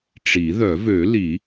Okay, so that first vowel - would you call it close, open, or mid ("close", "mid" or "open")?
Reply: close